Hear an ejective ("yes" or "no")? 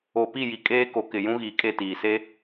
yes